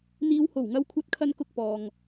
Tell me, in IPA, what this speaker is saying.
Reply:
n̪ iː˨˧ w h o˨˩ w ŋ ɐ˧ w kʷʰ ɐ˧ t̚ kʰ ɐ˧ n k ʊ˧ k̚ p ɔː˨ ŋ

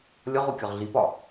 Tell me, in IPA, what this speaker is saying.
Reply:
lʲ ɒ ʁ o kʲ ɒ ʁ ɮ i p ɒ

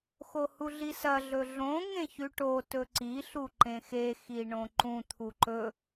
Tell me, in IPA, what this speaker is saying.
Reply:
x o h u ɮ i s ɐ ɮ ɵ ɮ õ ŋ ẽ ç ʉ ʈ o t ɵ ǀ i ɬ u ǃ ẽ x e x i ɳ õ ǃ ũ t̪ʰ u ǃ ɵ

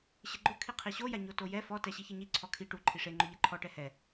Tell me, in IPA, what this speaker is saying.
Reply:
ɕ ɪ ɡ͡ǃ ʊ kʰ i qʰ i ɕ o j a ɲ o t o j ɛ f ɔ t ɛ ɕ i ç e ɲ i ǀʰ ɔ kʰ i ʈ u ǃʰ i ʂ e ŋ͡ǃ ʊ ʎ ɛ ǃʰ ɔ ʈ ɛ h ɛ

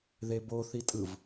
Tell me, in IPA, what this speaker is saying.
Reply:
ð e b o θ i tʼ ɯ v

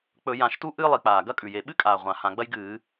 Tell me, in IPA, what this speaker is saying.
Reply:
k͡p ɵ˧˩˧ j ã˧˩˧ ʃ t u˥ ʔ ɨː˥ lˠ i˧˩˧ k͡p aː˨˩ ɡ ɐ˥ kʼ ʉ˨˩ j e˨˩ ɓ ɨ˥ kʼ aː˨˩ ʁʷ ã˨˩ h ã˨˩ ɡ͡b ɐ˥ j ɡ ɨː˧˩˧

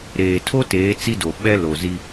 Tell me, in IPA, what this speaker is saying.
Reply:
ɾ eː˨ tʰ o˦ t eː˨˦ t͡s i˦ d o˨ ɓ ɛ˦ l o˨ z i˦

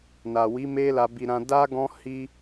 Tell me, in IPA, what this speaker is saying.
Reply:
n a˨ w i˨˦ m e˦ l a˧ b i˧ ɾ ã˧ d a˦ ɡ ɔ̃˦ h i˦

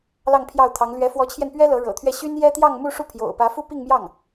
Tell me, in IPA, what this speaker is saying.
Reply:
l ɑ˥˧ ŋ pʰ j ɑ˥˩ ʊ̯ t̪ʰ ɑ˧˥ ŋ l ɥ ɛ˧˥ f w ɔ˧˥ t͡ɕʰ j ɛ˧ n p ɥ ɛ˥ l ɤ˧˥ ɻ ɤ̰˨˩ t̪ʰ ɥ ɛ˥˩ ɕ y˥ n j ɛ˥ t̪ j ɑ˥˧ ŋ m u˥˧ ʂ u˥˩ pʰ j o̰˨˩ ʊ̯ p ä˧˥ f u˥ p i˥˧ ŋ m j ɑ˥˩ ŋ

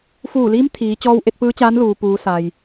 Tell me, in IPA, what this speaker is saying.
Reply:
f uː˧˩ l iː˧˥ m t̪ʰ iː˩˧ t͡ɕ ɔː˧ w ʔ e˧ t̚ p ɯː˧˥ t͡ɕ aː˧˥ n l uː˩ p uː˩˧ s a˩ j

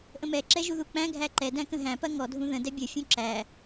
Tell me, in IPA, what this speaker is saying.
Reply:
ʔ ə̃ m ɛ ǁ ɛ ʒ u ð u k͡p æ̃ ɡʱ æ ǃ ɛ d æ̃ k ə̃ ɦ æ̃ p ɐ ŋ ɔ dʱ ũ ð ə̃ d ɛ bʲ ə fʲ ũ ǁ æ

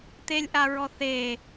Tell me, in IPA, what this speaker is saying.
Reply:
t̪ e lʲ ʔ a ɹ ɔ θ e

